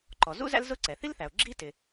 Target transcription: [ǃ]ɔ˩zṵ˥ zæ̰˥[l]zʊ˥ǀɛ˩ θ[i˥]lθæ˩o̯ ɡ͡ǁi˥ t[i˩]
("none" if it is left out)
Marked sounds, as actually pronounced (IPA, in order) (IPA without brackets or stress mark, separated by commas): ǃ, l, i˥, ɪ˩